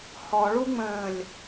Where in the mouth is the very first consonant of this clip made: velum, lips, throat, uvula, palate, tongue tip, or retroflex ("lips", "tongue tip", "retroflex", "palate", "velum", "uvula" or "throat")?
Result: throat